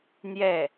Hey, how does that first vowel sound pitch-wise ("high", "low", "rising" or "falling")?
falling